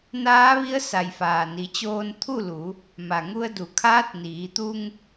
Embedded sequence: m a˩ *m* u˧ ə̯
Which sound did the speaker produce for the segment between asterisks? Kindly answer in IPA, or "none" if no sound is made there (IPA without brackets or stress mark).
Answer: ŋ